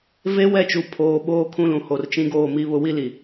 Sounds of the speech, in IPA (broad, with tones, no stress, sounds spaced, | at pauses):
v e˦ w ɛ˦˨ t͡ʃ u˨ pʰ oː˨˦ ɓ oː˦ kʰ ũ˦ l ũ˨ h o˨ r t͡ʃ ĩ˦ ɡ oː˦˨ m i˦ β ʊ˦ w i˦ l i˨